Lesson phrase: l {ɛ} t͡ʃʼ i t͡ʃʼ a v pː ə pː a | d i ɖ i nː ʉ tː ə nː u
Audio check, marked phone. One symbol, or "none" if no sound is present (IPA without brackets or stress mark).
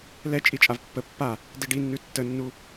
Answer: ɛ